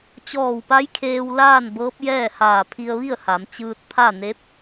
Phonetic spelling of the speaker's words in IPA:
t͡ɕɔː˧˩wpa˧˥j kʰeː˧wlaː˥˨n bɤː˧˥p̚jɛː˥˨haː˧˩ pʰi˧ə̯ʋi˥˨ə̯ha˩˧mt͡ɕɯː˧t̚ pʰa˥˨ne˧˥p̚

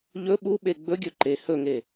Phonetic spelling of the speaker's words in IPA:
ʎɵ ɓuɓe ɡ͡bɵɡʲɵ ǃe hɵŋe

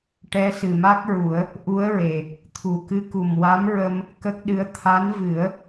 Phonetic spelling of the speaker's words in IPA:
ʈɛ˧˥sɨ˨˩ma˦˥k̚ɹu˨˩˦ə̯ | ʔu˧˥ə̯ɹe˨˩ | t̪ʰu˨˩kɨ˧˥ku˨˩m wa˧˥mɹə˧m | kə˦˥k̚ɗɨ˧˥ə̯ t̪ʰa˧˥nvɨ˨˩˦ə̯

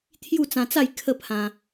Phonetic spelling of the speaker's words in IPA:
t̪ʰju˥˧t͡sã˧t͡sa˥˧j kʰə˥˧pʰã˧

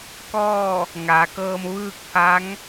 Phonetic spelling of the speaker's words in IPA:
kɔː˥˨ | ŋaː˩˧kɤː˧mʋɯː˥˨k̚pʰa˧˥ŋ

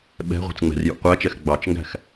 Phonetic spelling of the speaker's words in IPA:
ɓɛ̤ʁʷɛ̤t͡sŋ͡mɛ̤rjṵ qʷæt͡ʃɛx ɡ͡bɑt͡ʃŋɡæ̤x

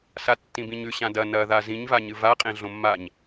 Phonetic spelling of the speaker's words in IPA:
satːĩbĩɲʉ ɕãdɐ nɐ ðazĩɲ vaɲɨva qʼẽɮõmːaɲ

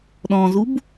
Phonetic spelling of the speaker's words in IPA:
ɗɔ̃zub

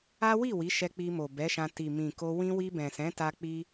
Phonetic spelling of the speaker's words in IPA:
a˦wi˦˨ wi˨˦ʃɛ˧k͡pi˧mo˨ bɛ˨˦ʃã˧ ti˨ mĩ˨ko˧ wĩ˧wi˧bɛ̃˨ sɛ̃˨˦ta˧ k͡pi˦

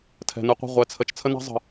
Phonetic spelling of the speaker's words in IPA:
tʰɛ̤˨nɯ˧qʷa̤˦˨ ʁʷɛ˨t͡sʰə˨t͡ʃ t͡sʰə˦na̤˦zˤə̤˨

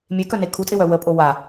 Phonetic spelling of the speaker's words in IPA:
mʲekœne kʰutʼɪwœ wəpʼo wa

